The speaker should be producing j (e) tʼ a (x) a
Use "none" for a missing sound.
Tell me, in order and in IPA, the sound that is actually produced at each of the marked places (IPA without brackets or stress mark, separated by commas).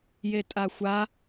e, xʷ